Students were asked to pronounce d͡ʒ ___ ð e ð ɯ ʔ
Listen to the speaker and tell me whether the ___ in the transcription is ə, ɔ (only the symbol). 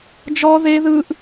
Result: ɔ